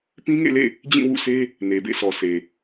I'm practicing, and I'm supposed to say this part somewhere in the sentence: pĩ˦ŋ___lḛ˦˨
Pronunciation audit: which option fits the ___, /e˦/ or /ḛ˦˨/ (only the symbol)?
ḛ˦˨